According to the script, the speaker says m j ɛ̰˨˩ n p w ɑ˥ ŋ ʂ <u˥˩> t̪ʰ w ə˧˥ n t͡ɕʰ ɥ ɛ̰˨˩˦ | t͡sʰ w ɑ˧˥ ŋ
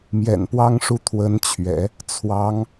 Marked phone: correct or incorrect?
correct